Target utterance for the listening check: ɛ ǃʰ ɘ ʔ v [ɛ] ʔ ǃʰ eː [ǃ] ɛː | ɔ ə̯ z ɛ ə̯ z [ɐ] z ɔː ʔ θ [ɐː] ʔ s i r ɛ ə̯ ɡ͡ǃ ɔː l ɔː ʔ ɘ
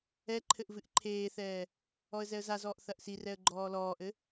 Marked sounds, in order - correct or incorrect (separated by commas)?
incorrect, incorrect, incorrect, incorrect